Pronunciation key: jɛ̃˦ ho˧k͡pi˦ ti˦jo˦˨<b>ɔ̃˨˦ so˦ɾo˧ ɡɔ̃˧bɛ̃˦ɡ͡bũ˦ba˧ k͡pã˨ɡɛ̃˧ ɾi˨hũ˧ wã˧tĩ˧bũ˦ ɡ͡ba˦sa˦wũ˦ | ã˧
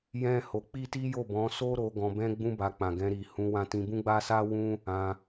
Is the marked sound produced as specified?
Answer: yes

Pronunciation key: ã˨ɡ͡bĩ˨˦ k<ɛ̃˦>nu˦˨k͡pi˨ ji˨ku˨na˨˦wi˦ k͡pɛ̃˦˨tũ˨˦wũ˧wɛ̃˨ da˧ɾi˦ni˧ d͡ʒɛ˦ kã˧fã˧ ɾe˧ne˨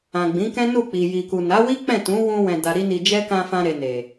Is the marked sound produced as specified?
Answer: yes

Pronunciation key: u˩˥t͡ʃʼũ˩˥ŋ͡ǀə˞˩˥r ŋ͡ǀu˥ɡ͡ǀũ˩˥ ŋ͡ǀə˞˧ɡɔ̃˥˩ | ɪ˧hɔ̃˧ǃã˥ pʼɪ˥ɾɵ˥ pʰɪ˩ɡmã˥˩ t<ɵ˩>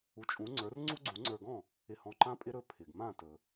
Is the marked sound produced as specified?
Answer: yes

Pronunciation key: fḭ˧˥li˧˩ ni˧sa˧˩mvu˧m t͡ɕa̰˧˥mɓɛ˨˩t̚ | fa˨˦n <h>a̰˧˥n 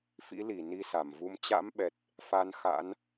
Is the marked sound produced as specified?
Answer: no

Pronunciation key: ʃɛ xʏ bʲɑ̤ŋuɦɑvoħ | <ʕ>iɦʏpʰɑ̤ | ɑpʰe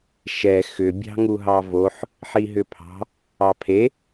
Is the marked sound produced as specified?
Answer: no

